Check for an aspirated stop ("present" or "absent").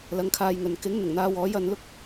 present